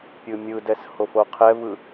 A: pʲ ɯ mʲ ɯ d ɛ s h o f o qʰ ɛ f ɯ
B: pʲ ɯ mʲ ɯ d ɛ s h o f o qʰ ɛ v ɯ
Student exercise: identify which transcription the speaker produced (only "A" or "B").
B